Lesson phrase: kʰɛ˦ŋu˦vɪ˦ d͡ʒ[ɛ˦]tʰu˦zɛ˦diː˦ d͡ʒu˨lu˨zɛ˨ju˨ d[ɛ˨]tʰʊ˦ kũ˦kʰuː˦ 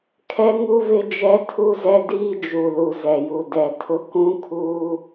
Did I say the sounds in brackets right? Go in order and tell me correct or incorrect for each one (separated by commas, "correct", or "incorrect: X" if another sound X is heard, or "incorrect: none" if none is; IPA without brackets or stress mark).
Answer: correct, correct